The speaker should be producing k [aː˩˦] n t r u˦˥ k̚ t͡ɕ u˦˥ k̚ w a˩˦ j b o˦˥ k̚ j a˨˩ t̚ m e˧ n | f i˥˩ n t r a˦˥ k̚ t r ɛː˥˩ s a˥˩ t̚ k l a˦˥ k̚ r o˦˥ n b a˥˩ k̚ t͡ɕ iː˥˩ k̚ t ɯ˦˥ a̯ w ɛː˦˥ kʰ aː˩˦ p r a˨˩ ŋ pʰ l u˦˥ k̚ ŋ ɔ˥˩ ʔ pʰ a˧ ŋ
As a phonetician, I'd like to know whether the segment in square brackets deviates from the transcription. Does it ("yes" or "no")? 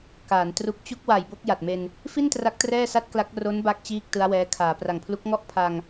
no